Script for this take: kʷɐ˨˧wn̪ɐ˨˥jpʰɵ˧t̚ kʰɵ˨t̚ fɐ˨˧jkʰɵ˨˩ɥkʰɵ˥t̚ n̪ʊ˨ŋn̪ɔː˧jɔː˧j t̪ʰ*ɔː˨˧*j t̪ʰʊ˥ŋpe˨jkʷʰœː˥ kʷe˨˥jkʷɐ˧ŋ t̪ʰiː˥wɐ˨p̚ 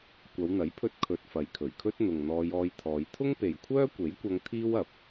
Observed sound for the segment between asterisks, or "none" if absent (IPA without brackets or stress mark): ɔː˨˧